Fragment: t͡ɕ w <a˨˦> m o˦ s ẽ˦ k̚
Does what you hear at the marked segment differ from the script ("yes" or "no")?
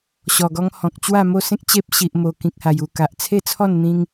yes